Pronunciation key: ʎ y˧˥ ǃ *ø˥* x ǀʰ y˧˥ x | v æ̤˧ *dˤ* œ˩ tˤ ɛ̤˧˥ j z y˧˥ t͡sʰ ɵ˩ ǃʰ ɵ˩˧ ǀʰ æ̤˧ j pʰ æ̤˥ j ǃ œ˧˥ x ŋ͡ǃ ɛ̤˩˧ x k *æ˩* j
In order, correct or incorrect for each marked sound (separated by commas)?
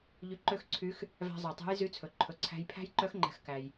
correct, incorrect, correct